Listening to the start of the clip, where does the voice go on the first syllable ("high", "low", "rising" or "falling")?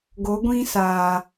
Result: rising